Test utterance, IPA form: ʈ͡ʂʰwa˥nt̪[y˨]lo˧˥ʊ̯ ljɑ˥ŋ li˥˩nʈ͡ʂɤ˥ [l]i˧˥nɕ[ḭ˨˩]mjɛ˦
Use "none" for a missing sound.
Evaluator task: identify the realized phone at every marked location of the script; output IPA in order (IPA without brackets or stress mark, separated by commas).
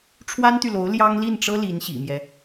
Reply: y˨, l, ḭ˨˩